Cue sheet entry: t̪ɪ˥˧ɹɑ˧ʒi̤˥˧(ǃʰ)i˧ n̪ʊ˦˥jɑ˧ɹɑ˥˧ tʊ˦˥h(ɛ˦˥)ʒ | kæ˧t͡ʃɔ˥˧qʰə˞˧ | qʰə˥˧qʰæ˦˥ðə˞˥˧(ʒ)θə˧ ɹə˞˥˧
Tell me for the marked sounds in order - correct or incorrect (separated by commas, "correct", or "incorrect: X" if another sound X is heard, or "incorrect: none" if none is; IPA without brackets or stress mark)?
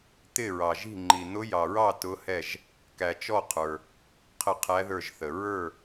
incorrect: ŋ͡ǃ, incorrect: ɛ˥˧, correct